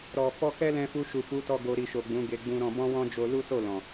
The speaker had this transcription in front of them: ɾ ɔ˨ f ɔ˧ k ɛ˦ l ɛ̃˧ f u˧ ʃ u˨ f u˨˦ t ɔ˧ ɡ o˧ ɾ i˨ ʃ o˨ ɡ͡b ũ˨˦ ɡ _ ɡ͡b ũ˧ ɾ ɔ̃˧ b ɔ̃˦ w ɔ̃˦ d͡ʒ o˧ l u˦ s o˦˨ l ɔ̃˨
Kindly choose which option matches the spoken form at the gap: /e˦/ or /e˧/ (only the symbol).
e˧